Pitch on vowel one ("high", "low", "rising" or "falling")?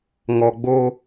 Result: low